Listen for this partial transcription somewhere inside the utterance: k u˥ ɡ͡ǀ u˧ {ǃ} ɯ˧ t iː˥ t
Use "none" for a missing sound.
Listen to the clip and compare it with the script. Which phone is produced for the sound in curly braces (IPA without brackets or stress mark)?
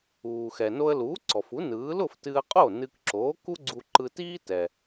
ǃ